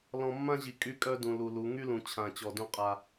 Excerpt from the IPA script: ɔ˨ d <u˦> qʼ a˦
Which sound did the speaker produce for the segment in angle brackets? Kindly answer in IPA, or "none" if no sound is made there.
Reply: ũ˦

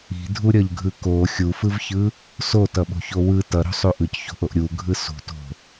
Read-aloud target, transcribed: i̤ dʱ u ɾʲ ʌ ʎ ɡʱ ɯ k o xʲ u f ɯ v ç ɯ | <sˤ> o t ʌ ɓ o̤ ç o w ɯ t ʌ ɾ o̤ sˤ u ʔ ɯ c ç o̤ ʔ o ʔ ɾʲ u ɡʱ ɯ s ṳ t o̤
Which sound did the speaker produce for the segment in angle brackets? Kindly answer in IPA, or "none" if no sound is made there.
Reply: s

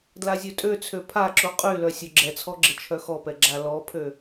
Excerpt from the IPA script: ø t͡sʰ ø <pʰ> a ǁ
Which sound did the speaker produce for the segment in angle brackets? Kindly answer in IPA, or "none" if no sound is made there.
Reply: pʰ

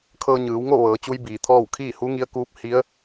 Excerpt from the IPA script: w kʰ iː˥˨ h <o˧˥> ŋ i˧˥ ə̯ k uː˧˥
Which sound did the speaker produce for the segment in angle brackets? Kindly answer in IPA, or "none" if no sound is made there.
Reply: u˧˥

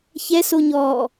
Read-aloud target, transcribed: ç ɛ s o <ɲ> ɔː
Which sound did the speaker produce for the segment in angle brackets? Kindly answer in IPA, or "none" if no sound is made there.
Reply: ɲ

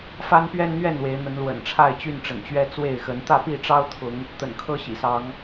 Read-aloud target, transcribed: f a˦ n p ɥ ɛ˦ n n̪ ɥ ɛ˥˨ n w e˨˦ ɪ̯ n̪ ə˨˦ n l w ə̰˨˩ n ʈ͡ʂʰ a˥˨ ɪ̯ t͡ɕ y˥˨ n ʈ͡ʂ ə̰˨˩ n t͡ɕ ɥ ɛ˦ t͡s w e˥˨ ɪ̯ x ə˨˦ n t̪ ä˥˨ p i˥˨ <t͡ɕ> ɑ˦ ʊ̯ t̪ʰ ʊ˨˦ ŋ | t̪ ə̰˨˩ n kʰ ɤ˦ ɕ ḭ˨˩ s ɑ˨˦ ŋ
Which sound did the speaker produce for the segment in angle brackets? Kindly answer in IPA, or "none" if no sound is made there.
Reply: ʈ͡ʂ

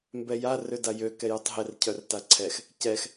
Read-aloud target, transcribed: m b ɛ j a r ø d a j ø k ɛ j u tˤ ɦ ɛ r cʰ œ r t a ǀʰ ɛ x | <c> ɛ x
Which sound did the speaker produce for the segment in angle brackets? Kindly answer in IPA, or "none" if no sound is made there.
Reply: c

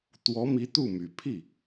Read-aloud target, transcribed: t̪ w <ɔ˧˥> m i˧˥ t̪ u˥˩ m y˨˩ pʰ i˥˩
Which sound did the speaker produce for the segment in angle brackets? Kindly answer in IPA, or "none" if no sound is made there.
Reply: ɔ˧˥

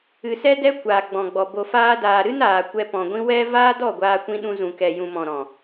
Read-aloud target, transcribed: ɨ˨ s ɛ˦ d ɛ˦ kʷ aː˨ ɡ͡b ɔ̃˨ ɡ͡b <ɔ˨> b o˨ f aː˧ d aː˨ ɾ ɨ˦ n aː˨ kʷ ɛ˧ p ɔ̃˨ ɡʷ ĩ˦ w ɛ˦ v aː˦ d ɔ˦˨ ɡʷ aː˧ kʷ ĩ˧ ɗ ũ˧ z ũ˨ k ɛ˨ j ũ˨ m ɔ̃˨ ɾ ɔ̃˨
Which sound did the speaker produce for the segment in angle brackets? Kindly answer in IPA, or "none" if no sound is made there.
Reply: ɔ˨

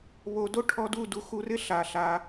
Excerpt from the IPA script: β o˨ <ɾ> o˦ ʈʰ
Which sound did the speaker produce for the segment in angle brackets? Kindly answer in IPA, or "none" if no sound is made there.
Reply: d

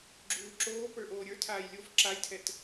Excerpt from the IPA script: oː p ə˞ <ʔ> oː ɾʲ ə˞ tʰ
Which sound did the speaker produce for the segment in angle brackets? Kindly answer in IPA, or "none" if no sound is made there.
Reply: ʔ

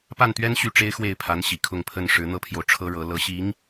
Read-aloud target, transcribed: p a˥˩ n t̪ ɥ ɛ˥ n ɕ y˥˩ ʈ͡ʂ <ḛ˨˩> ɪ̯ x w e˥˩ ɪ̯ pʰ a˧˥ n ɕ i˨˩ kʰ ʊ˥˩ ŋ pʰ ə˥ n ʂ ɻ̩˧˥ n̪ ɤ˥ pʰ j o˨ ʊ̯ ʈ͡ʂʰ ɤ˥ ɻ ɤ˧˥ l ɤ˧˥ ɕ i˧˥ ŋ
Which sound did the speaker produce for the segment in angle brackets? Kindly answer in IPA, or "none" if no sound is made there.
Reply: e˥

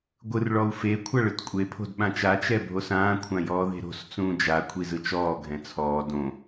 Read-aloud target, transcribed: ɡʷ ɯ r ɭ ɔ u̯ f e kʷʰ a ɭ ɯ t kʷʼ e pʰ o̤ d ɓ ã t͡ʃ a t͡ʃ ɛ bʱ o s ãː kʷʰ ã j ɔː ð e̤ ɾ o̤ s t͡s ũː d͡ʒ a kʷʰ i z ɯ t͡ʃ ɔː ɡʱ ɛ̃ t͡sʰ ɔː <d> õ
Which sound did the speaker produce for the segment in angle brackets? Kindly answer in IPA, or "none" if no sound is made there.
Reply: d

